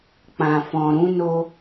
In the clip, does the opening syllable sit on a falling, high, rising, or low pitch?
low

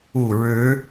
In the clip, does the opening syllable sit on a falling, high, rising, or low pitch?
low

